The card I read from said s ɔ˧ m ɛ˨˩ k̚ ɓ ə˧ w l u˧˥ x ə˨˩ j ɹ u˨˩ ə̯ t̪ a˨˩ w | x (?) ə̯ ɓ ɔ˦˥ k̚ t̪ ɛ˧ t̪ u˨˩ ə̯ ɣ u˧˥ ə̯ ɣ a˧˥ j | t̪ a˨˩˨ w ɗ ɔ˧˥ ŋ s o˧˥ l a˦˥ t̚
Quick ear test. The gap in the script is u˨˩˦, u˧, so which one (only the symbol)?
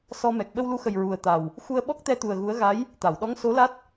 u˧